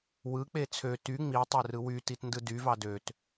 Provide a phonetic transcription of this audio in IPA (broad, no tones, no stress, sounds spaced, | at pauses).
w ɯ k͡p e t͡sʰ ø t y ŋ͡m i tˤ e r ɯ w y t i t n d ɯ d y v ɑ d ø t